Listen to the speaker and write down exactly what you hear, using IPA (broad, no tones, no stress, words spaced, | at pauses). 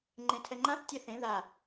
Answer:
ŋ͡ǃẽtʰɛŋ͡ǃãθ tʲɛθẽ ða